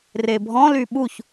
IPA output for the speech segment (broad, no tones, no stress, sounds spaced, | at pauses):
r e bʱ ɔ̃ l y ɓ u ç